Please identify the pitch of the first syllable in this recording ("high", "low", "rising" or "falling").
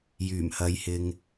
low